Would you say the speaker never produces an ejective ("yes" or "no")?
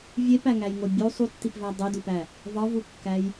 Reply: yes